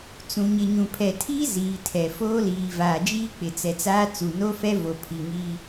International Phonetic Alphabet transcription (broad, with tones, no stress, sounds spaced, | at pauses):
t͡s ũ˨ ɲ ɪ˨ ɲ ũ˨ pʰ ɛ˨ tʰ iː˦ z iː˨ tʰ ɛ˨ f oː˦ l iː˨ v aː˨ d͡ʒ iː˦ k͡p ɪ˨ t͡s ɛ˨ t͡s aː˦ t͡s u˨ n o˦ f ɛ˦ v o˨ pʰ i˨ ŋ iː˦